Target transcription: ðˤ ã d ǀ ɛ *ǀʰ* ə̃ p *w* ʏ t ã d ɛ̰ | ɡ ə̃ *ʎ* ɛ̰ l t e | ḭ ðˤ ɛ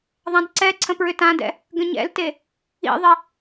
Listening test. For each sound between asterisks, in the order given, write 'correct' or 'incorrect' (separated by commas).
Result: correct, incorrect, incorrect